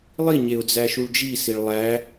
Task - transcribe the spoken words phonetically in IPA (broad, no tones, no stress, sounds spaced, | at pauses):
lˠ i ɲ e ʊ̯ d͡z æ ʃ u ɭ d͡ʒ i s i ɭ lˠ æ